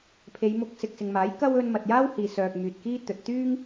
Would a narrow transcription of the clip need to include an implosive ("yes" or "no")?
no